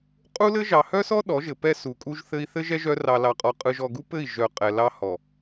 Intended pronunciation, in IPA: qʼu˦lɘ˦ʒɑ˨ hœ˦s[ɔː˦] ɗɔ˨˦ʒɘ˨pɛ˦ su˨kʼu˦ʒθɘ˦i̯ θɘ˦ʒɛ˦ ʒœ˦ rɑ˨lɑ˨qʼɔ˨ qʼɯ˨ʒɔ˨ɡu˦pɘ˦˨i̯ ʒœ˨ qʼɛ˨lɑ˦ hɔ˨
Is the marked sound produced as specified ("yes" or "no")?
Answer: no